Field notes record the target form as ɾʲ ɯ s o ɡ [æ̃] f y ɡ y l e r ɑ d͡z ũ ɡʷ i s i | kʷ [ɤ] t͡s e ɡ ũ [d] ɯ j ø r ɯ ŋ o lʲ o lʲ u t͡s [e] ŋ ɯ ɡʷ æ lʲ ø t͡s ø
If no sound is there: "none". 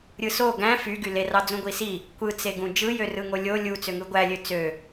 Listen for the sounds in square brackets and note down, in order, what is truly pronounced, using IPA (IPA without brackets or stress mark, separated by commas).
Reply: æ̃, ɯ, d͡ʒ, ø